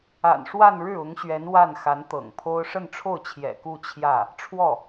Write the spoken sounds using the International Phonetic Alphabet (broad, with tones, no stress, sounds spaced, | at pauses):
a̰˨˩ n ʂ w a˥˧ n ɻ ɻ̩˥˩ ʊ˧˥ ŋ ɕ ɥ ɛ˧˥ n w a˥˩ n x a˧˥ n t̪ ɤ̰˨˩ ŋ pʰ o˥ ʊ̯ ʂ ə˥˧ n ʈ͡ʂʰ o˥˩ ʊ̯ t͡ɕʰ j ɛ̰˨˩ k u˥˧ t͡ɕʰ j ä˥˩ | ʈ͡ʂʰ w ɔ˥˩